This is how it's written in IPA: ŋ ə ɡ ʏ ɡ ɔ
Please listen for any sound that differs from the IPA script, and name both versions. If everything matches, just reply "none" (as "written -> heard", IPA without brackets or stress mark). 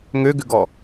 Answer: ə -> ø